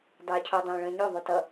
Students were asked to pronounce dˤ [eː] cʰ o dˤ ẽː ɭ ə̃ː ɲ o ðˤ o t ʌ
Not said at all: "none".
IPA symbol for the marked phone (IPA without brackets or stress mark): eː